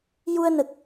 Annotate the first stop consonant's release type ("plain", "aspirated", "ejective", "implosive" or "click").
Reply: plain